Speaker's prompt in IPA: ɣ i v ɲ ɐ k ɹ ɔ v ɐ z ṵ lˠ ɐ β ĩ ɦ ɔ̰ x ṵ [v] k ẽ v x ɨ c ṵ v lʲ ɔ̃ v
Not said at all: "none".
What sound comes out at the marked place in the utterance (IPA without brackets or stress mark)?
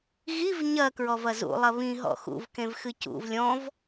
v